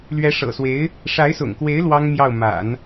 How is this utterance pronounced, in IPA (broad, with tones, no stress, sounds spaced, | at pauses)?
l ɥ ɛ˧˥ ʂ ɤ̰˨˩ s w e˧˥ ɪ̯ | ʂ a˧˥ ɪ̯ s ʊ̰˨˩ ŋ k w e˧˥ ɪ̯ l w ɑ˥ ŋ m j ɑ˥˩ ʊ̯ m a̰˨˩˦ n